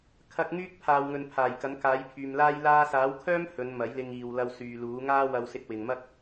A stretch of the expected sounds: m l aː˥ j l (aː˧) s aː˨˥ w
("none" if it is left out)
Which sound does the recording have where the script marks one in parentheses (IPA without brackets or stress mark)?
aː˧